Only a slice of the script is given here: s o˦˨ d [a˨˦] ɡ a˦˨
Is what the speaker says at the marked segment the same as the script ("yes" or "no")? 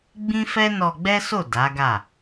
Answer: yes